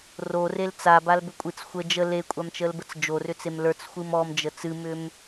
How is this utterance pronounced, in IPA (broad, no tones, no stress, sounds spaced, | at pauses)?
r o r e l t͡s a b a l b ʏ kʷʼ ɨ t͡s xʷ ə d͡ʒ ə l e kʷʼ a m t͡ʃ ə l b ə t͡s d͡ʒ o r ʏ t͡s e m l ə˞ t͡s xʷ ɨ m ɔ m d͡ʒ ə t͡s ɨ m ʏ m